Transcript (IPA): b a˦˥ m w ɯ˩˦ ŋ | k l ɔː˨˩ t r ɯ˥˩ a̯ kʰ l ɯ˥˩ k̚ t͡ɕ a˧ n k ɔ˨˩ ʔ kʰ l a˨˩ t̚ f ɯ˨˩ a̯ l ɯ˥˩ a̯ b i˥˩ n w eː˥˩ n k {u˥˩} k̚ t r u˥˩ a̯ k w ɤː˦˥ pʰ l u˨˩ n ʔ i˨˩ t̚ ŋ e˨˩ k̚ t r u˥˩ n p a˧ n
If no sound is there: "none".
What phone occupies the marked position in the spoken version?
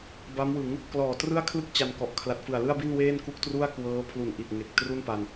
u˥˩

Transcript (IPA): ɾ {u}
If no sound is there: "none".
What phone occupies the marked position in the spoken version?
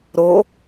o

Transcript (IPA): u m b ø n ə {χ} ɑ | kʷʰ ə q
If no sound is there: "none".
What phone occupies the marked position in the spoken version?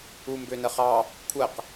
χ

